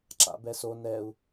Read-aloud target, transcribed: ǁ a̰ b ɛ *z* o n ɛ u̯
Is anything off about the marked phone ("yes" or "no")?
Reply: yes